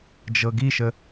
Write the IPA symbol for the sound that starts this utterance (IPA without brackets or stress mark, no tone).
d͡ʒ